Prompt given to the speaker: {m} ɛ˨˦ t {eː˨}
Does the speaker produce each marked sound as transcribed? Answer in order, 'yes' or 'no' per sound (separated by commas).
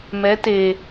yes, yes